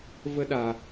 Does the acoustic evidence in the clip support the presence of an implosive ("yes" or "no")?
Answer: yes